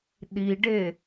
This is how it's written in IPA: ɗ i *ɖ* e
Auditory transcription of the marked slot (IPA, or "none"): ɖ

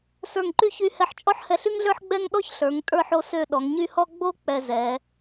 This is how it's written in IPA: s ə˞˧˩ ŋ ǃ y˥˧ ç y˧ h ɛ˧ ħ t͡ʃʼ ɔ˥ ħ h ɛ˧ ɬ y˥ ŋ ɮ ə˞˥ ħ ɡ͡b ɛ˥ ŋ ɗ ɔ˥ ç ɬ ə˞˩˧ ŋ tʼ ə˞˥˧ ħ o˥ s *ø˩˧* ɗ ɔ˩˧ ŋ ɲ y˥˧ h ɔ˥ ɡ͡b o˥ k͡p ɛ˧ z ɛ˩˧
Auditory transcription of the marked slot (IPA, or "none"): ø˥˧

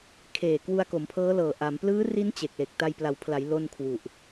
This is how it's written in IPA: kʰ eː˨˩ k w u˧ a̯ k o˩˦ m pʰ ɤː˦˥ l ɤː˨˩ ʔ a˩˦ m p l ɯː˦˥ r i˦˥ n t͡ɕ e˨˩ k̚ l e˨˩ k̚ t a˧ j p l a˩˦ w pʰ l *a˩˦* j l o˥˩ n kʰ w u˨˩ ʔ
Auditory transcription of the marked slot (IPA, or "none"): a˩˦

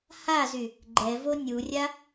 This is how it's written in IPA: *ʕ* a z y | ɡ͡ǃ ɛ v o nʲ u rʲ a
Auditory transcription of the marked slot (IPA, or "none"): h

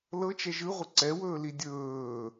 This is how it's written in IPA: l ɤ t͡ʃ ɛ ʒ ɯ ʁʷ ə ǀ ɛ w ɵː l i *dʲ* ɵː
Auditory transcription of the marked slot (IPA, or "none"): dʲ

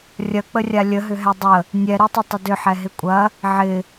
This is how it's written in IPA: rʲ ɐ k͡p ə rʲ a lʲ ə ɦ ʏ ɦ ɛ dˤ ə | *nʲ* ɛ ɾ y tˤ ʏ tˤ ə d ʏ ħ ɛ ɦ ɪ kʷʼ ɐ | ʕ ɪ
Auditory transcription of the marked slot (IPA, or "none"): nʲ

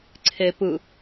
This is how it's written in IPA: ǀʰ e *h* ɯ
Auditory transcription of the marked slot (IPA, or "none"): p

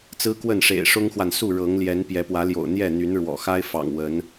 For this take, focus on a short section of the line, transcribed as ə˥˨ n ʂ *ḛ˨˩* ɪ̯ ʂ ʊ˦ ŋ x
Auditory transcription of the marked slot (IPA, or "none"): ḛ˨˩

